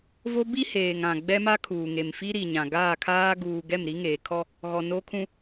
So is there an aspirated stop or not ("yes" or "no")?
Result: yes